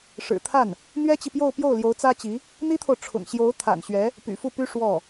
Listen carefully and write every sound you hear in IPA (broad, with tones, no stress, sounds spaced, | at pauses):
ʂ ɻ̩˨˩ t̪ʰ a˥˩ n | n̪ ɥ ɛ˥ t͡ɕ i˨ p j o˥˧ ʊ̯ p j o˥˩ ʊ̯ l j o˧˥ ʊ̯ t͡s ä˥ t͡ɕ i˧˥ | n̪ i˥ t̪ʰ o˨ ʊ̯ ʈ͡ʂʰ ʊ̰˨˩ ŋ ɕ j o˧˥ ʊ̯ t̪ʰ a̰˨˩ n ɕ ɥ ɛ˧˥ | p y̰˨˩ f u˥˩ p y˥ ʂ w ɔ˥˩